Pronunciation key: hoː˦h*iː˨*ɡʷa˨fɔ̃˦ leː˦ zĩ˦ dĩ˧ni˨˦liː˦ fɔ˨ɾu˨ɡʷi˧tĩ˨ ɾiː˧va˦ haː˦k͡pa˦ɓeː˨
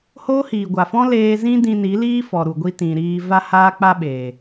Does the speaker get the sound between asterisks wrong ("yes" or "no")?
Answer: no